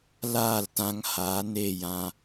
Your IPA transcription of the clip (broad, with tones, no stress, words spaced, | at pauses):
laː˦˨ltã˧ŋhaː˨˦ ne˦˨jã˧